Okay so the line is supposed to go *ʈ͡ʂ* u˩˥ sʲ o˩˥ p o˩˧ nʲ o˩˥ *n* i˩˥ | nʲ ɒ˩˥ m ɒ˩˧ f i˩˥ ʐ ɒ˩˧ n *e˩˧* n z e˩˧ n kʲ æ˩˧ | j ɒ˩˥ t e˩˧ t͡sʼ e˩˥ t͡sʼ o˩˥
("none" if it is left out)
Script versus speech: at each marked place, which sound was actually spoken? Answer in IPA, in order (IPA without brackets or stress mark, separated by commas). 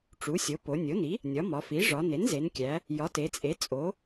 ʈ͡ʂ, n, e˩˥